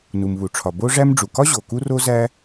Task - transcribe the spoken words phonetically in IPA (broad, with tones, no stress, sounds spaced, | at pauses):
n u˩ m β u˩ ʈ͡ʂʰ ɒ˩ b o˥ ʐ æ˥ m ɖ͡ʐ u˩ k ɒ˥ ʑ o˩ k u˥ r o˥ z æ˥